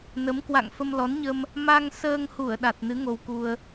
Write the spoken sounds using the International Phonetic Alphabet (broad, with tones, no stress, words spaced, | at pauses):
nə˨˦mkwa̰˧˨ŋ fə˧mlɔ˨˦nɲə˧m | ma˧ŋsəː˧ŋhu˧˩ə̯ ɗa˨˩t̚nɨ˨˦ ŋo˧wku˧ə̯